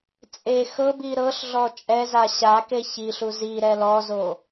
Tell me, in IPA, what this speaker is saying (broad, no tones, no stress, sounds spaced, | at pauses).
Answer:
t͡sʼ e x ɤ b i ɾ ɤ ɬ ɮ ɔ t͡ʃʼ ɛ z a ɕ a k e ç i ɬ u z i ɾ ɛ l ɔ z o